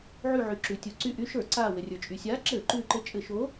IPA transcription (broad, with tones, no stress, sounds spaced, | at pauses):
ʕ y˧˩ ʕ y˩ ǁ ʉ˩ tʲ u˩ ǀ y˧˩ ʔ y˨˥ ʃ ə˞˧˩˧ ǀ aː˧˩ w ɘ˩ rʲ ə˞˩ t͡ʃʼ y˩ sʲ aː˨˥ ǁ ɘː˧˩˧ ǃ ʉː˧˩ ǃ ɘ˧˩ t͡ʃʼ ɘ˧˩˧ ʃ oː˨˥